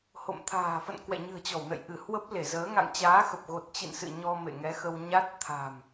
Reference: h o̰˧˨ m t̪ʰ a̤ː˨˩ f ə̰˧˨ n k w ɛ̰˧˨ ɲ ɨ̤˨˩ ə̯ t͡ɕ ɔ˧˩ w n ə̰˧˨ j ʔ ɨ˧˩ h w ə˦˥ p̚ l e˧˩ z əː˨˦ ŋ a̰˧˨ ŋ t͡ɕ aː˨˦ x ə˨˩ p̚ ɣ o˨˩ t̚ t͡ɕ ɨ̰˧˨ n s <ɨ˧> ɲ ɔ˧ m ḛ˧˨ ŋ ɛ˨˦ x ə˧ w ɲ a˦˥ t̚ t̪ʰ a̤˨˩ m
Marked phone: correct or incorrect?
incorrect